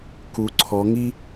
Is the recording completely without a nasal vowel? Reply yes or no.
yes